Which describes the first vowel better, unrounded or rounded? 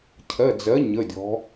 unrounded